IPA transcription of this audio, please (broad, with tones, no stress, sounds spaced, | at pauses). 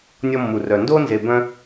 nʲ ɔ˥ mː u˧ r œ˧ n d o˥ n z e˧ b œ̃˥